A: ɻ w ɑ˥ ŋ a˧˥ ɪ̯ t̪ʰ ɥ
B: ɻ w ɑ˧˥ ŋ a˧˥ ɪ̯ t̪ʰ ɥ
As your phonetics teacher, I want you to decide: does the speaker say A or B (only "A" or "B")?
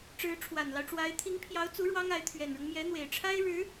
A